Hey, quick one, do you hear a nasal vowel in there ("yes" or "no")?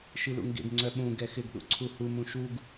yes